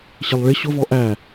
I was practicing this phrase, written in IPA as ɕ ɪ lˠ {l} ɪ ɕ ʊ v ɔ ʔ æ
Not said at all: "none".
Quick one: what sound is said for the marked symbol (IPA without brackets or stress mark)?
ɭ